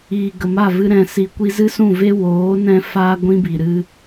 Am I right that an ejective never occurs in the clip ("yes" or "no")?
yes